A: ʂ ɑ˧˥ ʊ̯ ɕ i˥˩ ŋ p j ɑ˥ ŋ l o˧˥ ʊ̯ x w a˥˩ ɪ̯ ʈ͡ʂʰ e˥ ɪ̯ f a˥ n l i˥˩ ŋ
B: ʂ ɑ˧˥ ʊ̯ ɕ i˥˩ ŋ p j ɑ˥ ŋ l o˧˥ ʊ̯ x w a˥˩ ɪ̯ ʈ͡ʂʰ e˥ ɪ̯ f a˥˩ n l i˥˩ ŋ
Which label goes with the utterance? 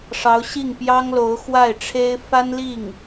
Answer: A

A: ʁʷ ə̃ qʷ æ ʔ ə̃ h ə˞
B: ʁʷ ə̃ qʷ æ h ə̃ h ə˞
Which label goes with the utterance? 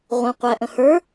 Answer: A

